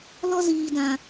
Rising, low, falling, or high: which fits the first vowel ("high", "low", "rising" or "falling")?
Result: high